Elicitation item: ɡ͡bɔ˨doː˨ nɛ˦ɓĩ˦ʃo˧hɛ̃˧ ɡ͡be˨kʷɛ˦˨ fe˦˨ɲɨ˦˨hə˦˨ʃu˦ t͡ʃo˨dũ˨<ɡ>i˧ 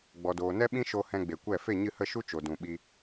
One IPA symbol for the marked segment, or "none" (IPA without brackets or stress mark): ɓ